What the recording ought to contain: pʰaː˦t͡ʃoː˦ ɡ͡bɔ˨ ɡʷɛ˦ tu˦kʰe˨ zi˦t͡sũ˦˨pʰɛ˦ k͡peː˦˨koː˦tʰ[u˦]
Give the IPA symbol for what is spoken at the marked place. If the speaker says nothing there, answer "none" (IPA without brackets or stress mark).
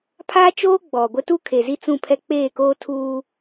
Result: uː˦